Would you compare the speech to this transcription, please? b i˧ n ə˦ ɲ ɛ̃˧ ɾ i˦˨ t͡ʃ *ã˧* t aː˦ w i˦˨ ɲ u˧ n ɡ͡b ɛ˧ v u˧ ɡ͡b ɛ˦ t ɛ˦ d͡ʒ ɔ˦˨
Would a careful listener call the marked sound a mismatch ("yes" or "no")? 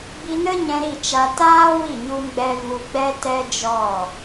yes